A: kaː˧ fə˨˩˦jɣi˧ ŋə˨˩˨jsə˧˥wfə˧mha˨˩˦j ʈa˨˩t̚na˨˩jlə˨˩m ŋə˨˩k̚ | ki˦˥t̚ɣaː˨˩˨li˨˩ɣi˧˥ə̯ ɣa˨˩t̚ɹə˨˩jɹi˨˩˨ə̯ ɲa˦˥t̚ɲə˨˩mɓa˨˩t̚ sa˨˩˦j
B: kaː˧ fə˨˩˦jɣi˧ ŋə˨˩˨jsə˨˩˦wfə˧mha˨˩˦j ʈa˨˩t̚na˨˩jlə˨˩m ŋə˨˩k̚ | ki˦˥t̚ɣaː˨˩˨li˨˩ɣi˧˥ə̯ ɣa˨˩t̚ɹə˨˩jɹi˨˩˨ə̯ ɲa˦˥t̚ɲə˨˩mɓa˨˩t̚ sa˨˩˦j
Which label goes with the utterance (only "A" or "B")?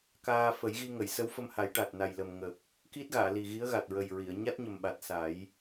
A